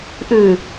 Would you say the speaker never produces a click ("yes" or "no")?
yes